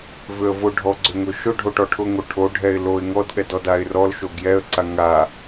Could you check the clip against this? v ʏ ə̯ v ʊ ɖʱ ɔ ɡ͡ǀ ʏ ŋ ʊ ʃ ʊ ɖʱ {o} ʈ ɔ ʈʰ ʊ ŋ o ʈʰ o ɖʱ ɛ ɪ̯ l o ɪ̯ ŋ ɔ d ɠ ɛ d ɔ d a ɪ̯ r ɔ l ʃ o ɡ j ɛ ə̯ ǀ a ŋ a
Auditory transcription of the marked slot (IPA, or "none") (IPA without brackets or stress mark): o